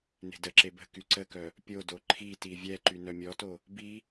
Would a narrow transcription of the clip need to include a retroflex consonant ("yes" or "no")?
no